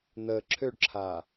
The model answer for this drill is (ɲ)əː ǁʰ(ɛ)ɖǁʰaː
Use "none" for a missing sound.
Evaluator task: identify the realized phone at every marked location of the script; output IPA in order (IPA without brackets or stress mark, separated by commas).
n̪, ø